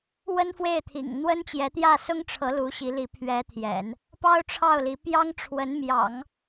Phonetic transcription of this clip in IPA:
w ə˥ n f w e˥˩ ɪ̯ t̪ʰ ḭ˨˩ ŋ n̪ w ə˥ n t͡ɕ j ɛ˧˥ t̪ j ä˥˩ s ʊ˥ ŋ ʈ͡ʂʰ ɤ˧˥ l u˧˥ ɕ i˧˥ l i˧˥ pʰ ɥ ɛ˧˥ t̪ʰ j ɛ̰˨˩˦ n | p ɑ˥ ʊ̯ ʈ͡ʂʰ ɑ˥˩ ʊ̯ l i˧˥ p j ɑ˥ ŋ ʈ͡ʂʰ w ə˧˥ n m j ɑ̰˨˩˦ ŋ

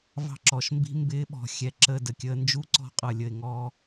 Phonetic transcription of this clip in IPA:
v ɑ̤˦ ǁ ɔ˨ ʃ m b i̤˦ m b ɪː˦ ɓ ɔ̤˨ xʲ ɛ˨ ǁ ə˦˨ d ə˨ kʲ əː˧ n d͡ʒ u˦ ǀ ɔ̤˧ qʼ ʌ˨ lʲ ə˨ ɪ̯ ŋ ɔ˧

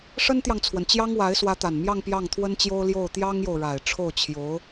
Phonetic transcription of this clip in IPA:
ʂ ə˥ n t̪ j ɑ˨ ŋ t͡sʰ w ə˩ n t͡ɕ j ɑ˥ ŋ w a˧˥ ɪ̯ s w ä˧˥ t̪ a˨˩ n m j ɑ˥˧ ŋ p j ɑ˥˩ ŋ t̪ʰ w ə˥ n t͡ɕ j o˥ ʊ̯ l j o˥˩ ʊ̯ t̪ j ɑ˥ ŋ j o˨ ʊ̯ ɻ a˨˩ ɪ̯ ʈ͡ʂʰ o˥˩ ʊ̯ t͡ɕʰ j o˧˥ ʊ̯

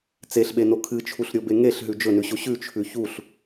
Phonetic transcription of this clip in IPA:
t͡s e ɬ ɓ e n o kʰ ɨ t͡ʃʰ u ɬ ɾʲ o b e ŋ e ɬ ɦ ʉ d͡ʒ ɵ n ʉ ɕ o ɕ ʉ t͡ʃʰ ʉ ç u ɬ

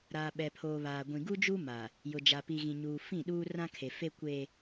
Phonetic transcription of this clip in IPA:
ɾ aː˨ ɓ ɛ˨ pʰ oː˨ β aː˨ ɡʷ ĩ˨ ɡ u˦ d͡ʒ u˦ m a˨ | j ʊ˨ d͡ʒ a˨ p i˨ ɣ ĩ˨ ɲ uː˨ f ĩ˦˨ ɗ uː˦ r ã˦ kʰ e˨ f e˦ kʷ e˦

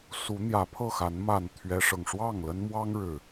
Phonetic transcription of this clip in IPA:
s u˨˦ n̪ j ä˨˦ pʰ ɤ˥˨ x a˨˦ n m a˥˨ n t̪ʰ ɥ ɛ˦ ʂ ɤ˨ ŋ ʂ w ɑ˥˨ ŋ l ə˦ n m w ɑ˦ ŋ ɻ ɻ̩˨˩

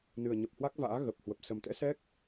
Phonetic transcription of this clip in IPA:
n ɨ˨˩ ə̯ ɲ ə˨˩ p̚ h w a˦˥ k̚ v a̰ː˧˥ ɣ ə˨˩ p̚ h w ə˨˩ p̚ s ə˨˩ m t̪ ɛ̰˧˥ s ɛ˦˥ k̚

